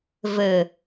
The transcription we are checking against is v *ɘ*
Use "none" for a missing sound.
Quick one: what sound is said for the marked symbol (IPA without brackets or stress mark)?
ɘ